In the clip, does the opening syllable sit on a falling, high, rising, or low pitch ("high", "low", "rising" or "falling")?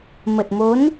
low